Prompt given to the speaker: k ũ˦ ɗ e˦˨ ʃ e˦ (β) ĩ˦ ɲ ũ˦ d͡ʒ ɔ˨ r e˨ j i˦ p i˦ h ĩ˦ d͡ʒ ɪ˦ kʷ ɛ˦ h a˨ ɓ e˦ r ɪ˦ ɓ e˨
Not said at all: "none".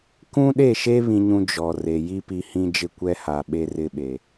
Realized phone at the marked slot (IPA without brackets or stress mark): β